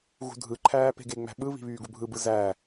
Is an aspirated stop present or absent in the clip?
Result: present